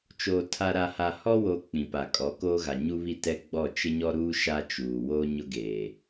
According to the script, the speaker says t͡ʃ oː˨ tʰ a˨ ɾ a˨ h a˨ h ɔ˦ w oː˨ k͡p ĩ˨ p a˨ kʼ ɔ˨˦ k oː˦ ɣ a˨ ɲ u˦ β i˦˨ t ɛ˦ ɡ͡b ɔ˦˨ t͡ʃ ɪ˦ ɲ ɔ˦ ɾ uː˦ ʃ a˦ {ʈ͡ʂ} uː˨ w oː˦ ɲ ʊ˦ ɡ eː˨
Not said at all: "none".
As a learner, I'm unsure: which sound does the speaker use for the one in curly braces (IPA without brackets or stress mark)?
t͡ʃ